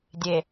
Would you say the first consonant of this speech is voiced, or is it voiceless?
voiced